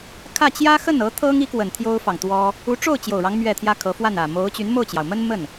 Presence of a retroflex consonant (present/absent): present